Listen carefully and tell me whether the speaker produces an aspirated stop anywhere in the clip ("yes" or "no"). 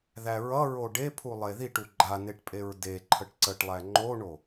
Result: yes